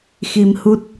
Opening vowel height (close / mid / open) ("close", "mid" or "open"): close